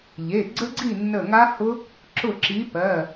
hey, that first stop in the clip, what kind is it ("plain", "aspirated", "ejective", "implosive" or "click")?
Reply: click